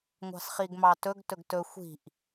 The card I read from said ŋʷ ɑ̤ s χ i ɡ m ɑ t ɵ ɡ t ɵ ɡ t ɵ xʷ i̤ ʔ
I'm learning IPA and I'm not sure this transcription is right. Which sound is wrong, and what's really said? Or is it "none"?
none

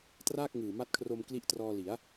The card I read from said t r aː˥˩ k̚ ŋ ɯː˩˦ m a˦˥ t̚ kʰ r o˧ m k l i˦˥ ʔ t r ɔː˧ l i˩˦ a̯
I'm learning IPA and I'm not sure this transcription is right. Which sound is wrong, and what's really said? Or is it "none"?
ɯː˩˦ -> ɯː˨˩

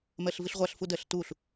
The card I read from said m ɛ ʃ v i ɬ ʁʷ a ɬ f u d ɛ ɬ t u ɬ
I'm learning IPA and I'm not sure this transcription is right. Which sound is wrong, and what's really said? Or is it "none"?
ʃ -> ɬ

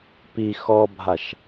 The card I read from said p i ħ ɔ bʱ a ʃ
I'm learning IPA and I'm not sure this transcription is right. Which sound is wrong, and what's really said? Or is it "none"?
ħ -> x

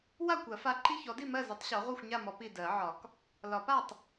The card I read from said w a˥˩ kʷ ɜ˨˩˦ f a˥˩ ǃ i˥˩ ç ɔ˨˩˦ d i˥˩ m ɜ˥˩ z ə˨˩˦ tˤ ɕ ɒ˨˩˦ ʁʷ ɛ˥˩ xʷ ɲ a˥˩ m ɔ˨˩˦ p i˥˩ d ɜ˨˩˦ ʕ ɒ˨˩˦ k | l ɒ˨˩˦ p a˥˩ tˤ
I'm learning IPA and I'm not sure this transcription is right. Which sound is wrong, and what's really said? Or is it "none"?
none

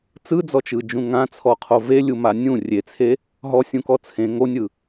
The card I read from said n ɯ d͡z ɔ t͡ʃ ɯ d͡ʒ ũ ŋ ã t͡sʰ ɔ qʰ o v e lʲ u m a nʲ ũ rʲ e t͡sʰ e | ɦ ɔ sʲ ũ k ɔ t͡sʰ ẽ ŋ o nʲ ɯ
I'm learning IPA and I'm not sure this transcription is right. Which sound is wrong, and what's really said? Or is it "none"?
n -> t͡s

